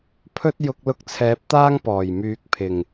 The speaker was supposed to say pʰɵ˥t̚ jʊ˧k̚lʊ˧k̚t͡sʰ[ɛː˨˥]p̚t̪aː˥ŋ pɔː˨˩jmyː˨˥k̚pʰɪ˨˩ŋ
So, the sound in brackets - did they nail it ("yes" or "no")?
yes